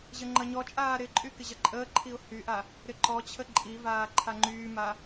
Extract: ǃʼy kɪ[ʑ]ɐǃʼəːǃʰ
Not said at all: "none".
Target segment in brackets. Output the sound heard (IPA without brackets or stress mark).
ʑ